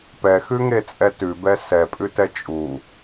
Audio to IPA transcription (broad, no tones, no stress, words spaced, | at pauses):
pɛxʉŋet͡sʼɛ tʉbɛ sɛpʼʉtɛ t͡ʃʼu